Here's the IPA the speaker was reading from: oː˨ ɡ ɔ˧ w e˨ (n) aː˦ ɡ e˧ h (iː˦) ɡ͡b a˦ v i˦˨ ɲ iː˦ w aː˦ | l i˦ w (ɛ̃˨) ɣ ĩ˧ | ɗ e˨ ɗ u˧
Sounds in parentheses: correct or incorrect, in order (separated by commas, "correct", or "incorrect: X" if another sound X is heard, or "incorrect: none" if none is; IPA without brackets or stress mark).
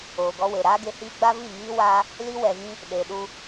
incorrect: ɾ, correct, incorrect: ɛ˨